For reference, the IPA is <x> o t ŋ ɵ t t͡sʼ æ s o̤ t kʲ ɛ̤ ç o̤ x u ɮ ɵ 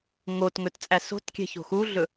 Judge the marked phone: incorrect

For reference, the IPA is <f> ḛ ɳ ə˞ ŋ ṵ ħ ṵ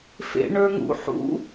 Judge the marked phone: correct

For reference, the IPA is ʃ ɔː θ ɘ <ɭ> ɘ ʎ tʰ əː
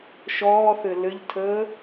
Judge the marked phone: incorrect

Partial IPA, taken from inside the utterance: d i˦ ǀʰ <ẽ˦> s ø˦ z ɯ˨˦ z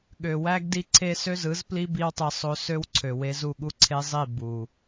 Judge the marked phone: incorrect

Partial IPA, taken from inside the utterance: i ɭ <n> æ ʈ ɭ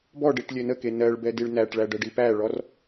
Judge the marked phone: correct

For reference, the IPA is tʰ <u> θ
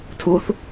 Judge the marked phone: correct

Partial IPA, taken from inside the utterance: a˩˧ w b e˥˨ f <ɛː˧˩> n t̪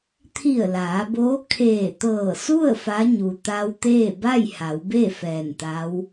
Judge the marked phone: correct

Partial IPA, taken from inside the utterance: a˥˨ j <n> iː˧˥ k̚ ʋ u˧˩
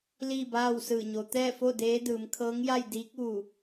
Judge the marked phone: incorrect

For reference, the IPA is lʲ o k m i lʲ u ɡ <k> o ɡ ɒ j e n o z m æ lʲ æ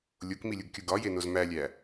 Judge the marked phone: incorrect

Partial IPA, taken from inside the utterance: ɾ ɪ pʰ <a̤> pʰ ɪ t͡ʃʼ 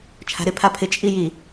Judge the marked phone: incorrect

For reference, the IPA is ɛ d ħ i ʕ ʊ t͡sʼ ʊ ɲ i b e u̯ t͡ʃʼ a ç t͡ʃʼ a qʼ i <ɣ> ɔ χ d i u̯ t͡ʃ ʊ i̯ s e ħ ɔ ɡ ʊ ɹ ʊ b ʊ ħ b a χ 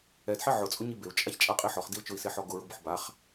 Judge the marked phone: incorrect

